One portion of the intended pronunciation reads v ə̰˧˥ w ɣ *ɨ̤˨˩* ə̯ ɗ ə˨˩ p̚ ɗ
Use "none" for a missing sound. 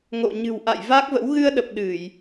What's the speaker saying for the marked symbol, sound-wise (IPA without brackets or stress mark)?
ɨ˧